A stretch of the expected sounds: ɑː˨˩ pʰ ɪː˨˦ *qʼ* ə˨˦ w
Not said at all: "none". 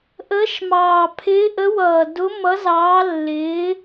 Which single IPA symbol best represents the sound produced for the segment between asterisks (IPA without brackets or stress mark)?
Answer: ʔ